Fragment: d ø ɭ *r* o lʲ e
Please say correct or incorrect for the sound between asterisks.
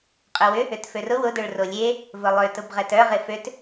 correct